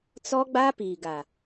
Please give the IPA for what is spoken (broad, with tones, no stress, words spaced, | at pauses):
t͡sɔ˦ɡ͡ba˦ piː˨ɡa˨